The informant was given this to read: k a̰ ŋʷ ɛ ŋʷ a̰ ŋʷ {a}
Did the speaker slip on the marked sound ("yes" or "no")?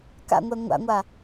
no